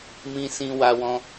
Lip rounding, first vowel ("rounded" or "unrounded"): unrounded